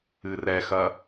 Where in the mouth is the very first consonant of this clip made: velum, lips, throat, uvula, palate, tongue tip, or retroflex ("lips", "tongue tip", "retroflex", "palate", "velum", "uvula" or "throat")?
tongue tip